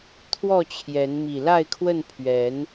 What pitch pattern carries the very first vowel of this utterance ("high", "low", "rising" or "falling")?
falling